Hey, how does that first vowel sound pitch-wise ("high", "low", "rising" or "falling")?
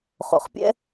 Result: low